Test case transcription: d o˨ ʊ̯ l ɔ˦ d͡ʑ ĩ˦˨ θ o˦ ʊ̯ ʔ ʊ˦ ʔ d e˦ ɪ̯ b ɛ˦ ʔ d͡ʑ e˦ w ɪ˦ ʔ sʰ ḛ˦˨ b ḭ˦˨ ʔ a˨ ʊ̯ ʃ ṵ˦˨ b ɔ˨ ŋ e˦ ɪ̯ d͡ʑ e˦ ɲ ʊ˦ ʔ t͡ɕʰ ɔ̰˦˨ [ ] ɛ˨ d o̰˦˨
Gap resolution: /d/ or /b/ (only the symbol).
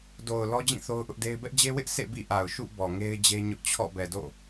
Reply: b